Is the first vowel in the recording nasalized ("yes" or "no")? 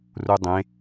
no